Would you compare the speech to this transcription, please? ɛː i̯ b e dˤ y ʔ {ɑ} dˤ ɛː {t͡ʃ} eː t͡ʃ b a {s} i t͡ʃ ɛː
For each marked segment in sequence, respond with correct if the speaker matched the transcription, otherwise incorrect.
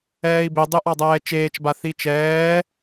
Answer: correct, correct, incorrect: θ

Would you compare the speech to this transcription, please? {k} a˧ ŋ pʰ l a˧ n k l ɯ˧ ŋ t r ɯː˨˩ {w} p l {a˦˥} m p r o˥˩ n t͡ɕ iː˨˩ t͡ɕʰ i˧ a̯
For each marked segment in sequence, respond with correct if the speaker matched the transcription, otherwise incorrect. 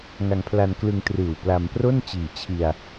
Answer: incorrect: ŋ, correct, incorrect: a˧

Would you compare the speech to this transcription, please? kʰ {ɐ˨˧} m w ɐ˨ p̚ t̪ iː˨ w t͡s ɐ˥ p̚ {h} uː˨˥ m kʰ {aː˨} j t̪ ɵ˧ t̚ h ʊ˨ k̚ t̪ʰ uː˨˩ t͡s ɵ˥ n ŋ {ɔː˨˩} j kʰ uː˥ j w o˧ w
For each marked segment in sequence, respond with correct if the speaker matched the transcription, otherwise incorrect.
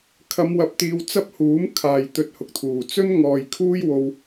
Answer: correct, correct, correct, incorrect: ɔː˨

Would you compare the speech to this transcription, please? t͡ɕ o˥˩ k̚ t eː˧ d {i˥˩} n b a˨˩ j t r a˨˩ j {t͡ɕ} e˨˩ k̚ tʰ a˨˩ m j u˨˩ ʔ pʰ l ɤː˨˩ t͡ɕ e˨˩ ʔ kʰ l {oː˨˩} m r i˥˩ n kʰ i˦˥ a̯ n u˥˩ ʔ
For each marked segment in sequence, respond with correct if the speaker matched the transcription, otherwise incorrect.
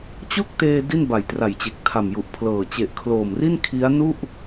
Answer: correct, correct, correct

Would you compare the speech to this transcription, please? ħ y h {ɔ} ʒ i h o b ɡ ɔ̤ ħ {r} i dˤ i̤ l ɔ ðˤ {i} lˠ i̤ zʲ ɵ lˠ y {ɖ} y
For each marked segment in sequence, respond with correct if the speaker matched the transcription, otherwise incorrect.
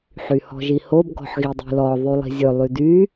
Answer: incorrect: ɔ̤, incorrect: ɣ, incorrect: y, incorrect: d

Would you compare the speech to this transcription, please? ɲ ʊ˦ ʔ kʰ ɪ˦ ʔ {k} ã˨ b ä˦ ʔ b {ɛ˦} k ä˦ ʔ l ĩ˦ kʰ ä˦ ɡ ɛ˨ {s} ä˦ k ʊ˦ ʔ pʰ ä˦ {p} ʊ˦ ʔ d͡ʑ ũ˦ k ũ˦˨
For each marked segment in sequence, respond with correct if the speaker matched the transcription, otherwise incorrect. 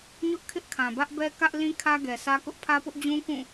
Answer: incorrect: kʰ, correct, correct, correct

